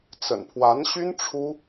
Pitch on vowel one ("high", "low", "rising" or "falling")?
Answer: low